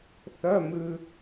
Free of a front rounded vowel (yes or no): no